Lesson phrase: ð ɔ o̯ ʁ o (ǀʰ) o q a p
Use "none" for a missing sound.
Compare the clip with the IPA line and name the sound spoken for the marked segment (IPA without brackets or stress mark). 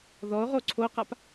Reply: ǀʰ